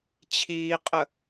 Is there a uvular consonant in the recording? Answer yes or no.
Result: yes